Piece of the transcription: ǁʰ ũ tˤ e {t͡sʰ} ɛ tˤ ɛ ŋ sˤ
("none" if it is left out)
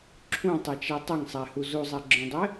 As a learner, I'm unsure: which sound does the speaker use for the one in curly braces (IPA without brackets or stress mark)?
t͡ʃ